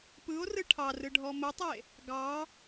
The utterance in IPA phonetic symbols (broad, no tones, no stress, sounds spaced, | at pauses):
p ɯ o̯ r ɯ ʈʰ ɑ r ɯ ɖʱ ɔ m ə tˤ e | ɡ ɑ